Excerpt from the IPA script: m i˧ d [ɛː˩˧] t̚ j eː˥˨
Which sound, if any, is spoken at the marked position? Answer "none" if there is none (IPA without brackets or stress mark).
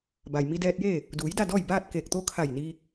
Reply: ɛː˧